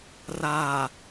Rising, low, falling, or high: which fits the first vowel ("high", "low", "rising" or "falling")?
low